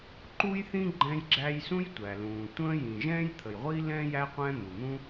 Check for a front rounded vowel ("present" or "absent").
absent